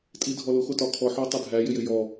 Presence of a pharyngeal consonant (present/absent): present